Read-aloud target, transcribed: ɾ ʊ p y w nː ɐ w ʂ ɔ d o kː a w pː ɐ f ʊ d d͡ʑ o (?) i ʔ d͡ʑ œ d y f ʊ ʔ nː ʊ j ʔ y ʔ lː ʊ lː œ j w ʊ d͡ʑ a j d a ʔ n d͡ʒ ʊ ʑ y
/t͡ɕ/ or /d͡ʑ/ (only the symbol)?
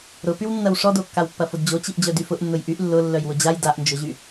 t͡ɕ